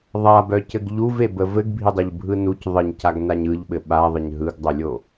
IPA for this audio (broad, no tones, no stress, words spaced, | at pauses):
ðˤabœcɘɡ ʎuvebə vɘɡbʱidˤœʎbʱɯ nuc ðˤɘɲcaɡnaɲ ɯʎɓɘ ɓaðˤɘɲ ɦɯɡdˤœlʲo